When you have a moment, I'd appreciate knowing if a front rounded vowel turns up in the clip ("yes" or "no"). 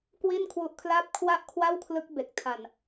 no